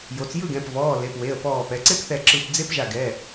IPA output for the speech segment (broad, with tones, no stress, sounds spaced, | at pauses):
j o˩˧ t͡s j ɯ˥˨ ɡ ɛ̃˩˧˩ p v ɔː˩˧˩ l e˩˧˩ p w e˩˧˩ ə̯ p ɔː˧˩ p ɛ˩˧ ǀ e˦˥ p θ ɛ˧˩ ǁ ɯ˧˩ p d͡z e˦˥ p ʒ a˧˩ ɡ ɛ˩˧˩